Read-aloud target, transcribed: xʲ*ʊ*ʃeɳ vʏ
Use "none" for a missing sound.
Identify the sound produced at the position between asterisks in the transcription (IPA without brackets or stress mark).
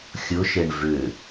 ʊ